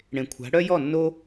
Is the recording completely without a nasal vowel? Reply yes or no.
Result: no